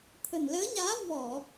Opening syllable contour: low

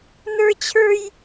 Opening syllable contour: high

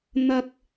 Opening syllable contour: high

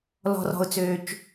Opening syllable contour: low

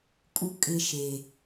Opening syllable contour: falling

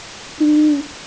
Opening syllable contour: high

